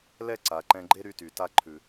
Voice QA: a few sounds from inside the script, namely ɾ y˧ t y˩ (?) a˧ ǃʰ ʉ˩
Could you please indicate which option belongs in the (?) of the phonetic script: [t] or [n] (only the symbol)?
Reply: t